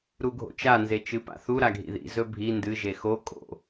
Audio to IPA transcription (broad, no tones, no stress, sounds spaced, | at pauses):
ɾ u ɡʱ o̰ t͡ʃ a n z e t͡ʃ ɨ p a̰ θ u ɾ a ɡʱ ḭ ð ḭ z ɵ bʱ i n d ɨ ʒ e x o kʼ o̰